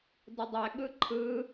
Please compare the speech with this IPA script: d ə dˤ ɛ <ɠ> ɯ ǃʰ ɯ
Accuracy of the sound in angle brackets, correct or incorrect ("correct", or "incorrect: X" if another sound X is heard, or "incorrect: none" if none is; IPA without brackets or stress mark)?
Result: correct